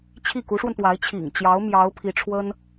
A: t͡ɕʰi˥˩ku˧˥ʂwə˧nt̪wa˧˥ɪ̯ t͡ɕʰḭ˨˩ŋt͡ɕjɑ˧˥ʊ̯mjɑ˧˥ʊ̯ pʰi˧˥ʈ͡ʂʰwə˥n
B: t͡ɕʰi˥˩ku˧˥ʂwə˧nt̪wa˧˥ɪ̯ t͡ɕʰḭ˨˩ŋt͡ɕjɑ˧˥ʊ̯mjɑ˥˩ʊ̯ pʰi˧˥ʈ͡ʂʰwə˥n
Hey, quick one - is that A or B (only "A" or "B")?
A